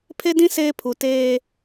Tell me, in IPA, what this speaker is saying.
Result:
pʰe˦dĩ˦ seː˦pʰu˨teː˦

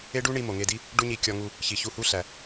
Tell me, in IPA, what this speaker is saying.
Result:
e˦ɖu˦ɳi˧ mo˨ŋe˧di˦ | ɖu˦ɲi˧ kʲɒ˧ŋu˧ | çi˨çu˧hu˦ɬæ˨

